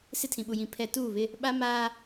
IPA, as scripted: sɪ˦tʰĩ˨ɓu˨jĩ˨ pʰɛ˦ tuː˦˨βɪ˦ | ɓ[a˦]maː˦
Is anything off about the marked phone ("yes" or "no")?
no